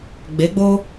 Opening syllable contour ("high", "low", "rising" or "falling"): rising